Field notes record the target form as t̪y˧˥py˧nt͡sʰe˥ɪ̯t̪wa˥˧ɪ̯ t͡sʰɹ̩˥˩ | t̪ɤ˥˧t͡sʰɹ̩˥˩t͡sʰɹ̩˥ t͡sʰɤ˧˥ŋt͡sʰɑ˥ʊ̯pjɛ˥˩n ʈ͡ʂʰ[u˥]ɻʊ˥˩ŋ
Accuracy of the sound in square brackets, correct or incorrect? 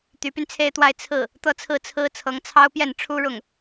correct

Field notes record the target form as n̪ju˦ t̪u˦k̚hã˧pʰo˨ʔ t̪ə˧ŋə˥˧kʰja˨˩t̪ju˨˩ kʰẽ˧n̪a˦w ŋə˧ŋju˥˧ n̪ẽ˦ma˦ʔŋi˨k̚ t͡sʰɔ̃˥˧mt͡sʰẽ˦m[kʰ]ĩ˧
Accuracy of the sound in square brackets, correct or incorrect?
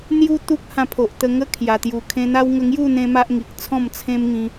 incorrect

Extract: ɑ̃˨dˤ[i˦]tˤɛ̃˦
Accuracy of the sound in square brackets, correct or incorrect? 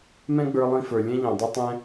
correct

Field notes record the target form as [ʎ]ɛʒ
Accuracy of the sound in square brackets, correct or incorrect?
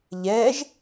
correct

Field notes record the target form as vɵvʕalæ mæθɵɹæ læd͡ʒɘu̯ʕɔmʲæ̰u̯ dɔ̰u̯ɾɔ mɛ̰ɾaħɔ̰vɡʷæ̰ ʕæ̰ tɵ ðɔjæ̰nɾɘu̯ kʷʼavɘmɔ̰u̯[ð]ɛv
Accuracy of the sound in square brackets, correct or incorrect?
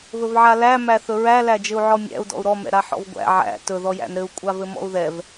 correct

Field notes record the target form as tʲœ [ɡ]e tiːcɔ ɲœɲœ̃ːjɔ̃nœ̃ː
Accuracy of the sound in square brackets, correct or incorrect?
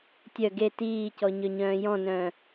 correct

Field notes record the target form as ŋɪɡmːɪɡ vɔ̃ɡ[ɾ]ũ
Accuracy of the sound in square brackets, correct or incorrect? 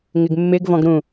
correct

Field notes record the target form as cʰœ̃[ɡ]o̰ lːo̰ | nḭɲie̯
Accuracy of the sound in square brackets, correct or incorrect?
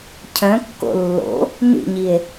incorrect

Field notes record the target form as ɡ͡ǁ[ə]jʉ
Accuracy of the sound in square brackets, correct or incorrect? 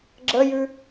correct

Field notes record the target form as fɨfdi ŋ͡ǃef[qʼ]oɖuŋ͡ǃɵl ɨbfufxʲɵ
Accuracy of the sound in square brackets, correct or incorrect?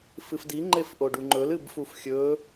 incorrect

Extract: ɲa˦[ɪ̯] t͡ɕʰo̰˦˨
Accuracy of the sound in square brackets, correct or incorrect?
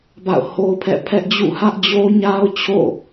incorrect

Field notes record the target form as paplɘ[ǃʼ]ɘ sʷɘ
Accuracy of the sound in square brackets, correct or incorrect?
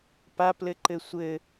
incorrect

